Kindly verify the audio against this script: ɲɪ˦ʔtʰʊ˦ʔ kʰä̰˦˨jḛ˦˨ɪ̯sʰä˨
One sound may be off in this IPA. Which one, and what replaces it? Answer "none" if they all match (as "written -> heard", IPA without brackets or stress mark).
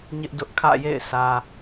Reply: tʰ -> d